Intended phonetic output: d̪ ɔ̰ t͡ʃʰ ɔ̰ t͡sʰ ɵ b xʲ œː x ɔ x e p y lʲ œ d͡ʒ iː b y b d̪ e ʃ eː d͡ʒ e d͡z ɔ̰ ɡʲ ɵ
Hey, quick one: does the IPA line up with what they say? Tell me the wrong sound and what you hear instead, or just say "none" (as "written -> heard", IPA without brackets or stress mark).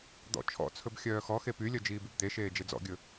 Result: none